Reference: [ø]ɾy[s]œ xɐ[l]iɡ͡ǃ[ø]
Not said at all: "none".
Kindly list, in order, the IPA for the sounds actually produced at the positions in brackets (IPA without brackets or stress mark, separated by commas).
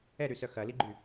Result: ɛ, s, l, y